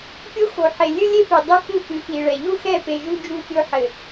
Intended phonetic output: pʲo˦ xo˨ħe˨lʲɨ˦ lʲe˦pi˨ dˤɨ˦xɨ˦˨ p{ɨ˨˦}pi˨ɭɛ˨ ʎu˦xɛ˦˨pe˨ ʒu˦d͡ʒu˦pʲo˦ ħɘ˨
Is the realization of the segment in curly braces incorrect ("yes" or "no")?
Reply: no